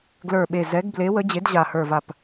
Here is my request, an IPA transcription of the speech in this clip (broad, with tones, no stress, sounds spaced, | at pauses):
ɡ l ə˞˧˩ ɓ e˧˩ z ɛ˨˥ ɡ b l e˨˥ w ə˨˥ d͡ʑ e˨˥ d ʑ a˧˩ h ə˞˧˩ v a˧˩ p